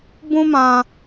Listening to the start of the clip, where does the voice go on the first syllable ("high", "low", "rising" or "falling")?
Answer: high